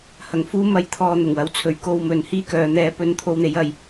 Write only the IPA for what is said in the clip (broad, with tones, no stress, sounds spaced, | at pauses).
h ɐ˨ ŋ f uː˥ m ɐ˧ j t̪ʰ ɔː˧ n̪ ʊ˨˩ ŋ w ɐ˨ w t͡sʰ ɵ˨˧ ɥ k o˧ w m ɵ˨ n h iː˥ k œː˨˧ n̪ ɛː˧ p ɵ˧ n t̪ʰ o˧ w n̪ e˨˧ j ɐ˨ j